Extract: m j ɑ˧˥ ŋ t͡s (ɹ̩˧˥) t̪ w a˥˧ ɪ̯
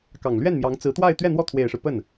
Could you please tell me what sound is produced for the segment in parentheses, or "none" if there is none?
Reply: ɹ̩˧˥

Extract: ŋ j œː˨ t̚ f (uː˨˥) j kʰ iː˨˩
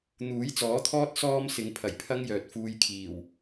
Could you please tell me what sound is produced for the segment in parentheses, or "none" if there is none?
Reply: uː˧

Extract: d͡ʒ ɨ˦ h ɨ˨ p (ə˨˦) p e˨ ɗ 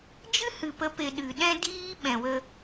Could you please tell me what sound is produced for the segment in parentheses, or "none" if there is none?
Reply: ə˨˦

